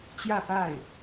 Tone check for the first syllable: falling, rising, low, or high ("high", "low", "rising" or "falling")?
falling